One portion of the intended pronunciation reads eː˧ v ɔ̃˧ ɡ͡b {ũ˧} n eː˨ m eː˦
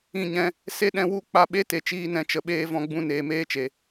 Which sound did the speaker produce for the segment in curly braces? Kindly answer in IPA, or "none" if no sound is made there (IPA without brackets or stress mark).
ũ˧